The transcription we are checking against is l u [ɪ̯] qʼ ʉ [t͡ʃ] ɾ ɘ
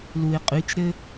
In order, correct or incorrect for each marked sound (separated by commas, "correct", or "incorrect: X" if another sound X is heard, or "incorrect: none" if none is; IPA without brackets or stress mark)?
correct, correct